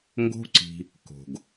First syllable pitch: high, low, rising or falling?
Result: high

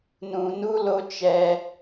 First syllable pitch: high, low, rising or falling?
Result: low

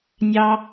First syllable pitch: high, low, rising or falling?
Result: high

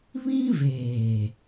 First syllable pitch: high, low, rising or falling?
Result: high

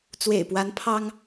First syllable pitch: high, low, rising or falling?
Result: low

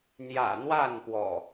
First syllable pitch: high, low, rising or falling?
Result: low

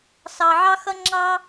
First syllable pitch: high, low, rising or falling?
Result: low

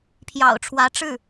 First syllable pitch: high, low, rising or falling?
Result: low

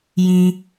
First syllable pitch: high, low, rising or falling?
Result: low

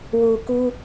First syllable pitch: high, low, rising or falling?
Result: low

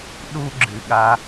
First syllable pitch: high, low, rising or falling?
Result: high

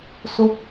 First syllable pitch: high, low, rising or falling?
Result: falling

